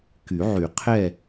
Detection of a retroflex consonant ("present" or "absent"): absent